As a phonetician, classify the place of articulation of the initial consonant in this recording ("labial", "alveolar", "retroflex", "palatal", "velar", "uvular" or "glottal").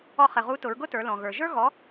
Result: uvular